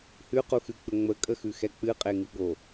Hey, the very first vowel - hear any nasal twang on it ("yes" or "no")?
no